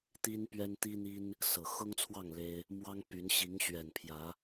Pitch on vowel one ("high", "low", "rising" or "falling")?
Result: high